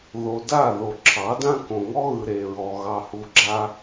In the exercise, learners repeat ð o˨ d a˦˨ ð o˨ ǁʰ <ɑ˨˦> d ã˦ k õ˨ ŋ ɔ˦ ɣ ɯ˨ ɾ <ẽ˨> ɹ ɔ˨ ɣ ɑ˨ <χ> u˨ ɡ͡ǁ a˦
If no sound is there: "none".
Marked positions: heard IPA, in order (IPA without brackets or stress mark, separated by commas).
ɑ˨˦, e˨, h